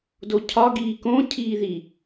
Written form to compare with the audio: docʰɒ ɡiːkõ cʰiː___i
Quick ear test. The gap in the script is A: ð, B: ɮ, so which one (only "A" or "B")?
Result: A